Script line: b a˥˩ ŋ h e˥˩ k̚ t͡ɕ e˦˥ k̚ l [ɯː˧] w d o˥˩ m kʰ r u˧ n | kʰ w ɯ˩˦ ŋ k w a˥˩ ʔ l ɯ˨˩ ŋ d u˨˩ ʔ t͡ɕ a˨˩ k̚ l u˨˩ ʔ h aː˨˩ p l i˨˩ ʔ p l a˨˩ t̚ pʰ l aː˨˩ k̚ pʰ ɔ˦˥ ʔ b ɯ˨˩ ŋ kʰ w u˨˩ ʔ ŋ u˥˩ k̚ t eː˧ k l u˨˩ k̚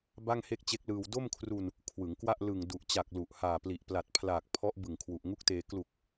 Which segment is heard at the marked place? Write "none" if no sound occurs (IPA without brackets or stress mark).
ɯː˧